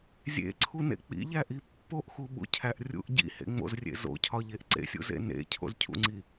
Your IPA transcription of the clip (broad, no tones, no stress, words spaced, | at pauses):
zʲḛǀʰunḛ k͡pḭʎæʔi pːoʔxuɓṵcʰæʔ rʲṵʔ ɟḭhḛŋ͡mo̰zrʲḛ zo̰cʰɒʎeʔ ǀḛsʲṵzḛ nḛcʰo̰zcʰṵŋ͡ǀi